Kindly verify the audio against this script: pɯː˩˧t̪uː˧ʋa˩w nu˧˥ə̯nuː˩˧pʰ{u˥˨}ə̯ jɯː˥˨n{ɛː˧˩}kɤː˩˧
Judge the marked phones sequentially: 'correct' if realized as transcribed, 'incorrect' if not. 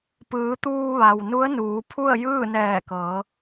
correct, correct

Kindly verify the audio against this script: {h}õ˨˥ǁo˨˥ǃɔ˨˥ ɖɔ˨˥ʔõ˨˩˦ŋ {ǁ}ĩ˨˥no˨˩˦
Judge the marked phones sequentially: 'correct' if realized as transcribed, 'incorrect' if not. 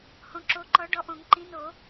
correct, incorrect

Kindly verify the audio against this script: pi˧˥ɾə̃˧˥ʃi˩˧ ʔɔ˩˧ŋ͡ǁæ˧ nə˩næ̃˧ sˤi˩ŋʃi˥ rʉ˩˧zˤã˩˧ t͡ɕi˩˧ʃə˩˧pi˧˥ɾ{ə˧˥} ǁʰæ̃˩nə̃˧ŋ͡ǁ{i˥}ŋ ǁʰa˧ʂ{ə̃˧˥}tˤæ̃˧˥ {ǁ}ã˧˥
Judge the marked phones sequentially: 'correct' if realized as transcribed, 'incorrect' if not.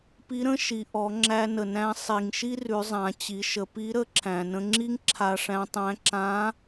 correct, correct, incorrect, correct

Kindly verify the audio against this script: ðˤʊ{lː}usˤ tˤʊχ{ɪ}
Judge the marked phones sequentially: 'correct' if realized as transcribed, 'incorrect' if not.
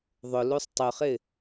incorrect, correct

